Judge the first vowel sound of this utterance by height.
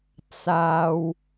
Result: low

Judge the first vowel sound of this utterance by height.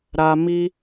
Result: low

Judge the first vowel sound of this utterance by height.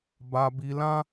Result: low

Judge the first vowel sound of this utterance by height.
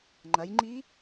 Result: low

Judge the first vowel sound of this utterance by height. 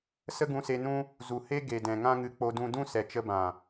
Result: mid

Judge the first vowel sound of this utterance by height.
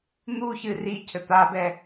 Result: high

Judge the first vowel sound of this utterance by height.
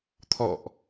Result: mid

